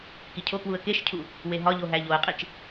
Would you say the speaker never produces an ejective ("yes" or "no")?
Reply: no